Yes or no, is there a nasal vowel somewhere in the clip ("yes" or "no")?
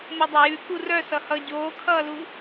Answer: no